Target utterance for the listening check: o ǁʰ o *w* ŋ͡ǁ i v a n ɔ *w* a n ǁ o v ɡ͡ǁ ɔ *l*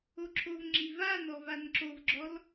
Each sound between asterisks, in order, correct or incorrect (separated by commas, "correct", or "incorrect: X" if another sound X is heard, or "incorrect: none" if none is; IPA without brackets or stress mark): incorrect: v, incorrect: v, correct